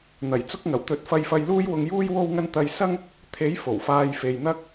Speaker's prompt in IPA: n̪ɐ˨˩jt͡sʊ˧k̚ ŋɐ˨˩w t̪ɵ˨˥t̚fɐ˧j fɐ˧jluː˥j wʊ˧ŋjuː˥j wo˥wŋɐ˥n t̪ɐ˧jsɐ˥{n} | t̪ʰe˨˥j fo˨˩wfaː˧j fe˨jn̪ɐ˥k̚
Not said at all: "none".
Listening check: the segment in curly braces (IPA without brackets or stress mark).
ŋ